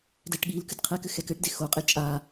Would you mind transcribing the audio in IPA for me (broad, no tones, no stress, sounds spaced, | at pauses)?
d ɛ ʈ ɠ i l k ɨ d qʰ ɛ k ɘ x ɛ k ɘ ʈ d e x o qʼ e t͡ʃʼ a